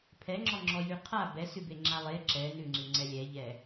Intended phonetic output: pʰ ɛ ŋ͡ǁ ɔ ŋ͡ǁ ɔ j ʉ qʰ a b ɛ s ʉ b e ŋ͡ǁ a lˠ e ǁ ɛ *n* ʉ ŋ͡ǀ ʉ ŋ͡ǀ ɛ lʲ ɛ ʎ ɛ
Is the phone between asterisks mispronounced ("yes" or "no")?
no